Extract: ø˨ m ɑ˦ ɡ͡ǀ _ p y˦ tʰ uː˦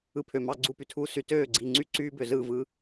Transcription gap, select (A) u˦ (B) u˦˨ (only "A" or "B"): B